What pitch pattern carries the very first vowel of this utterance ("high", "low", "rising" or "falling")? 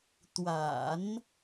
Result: low